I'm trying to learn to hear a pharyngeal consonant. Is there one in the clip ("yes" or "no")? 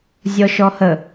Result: no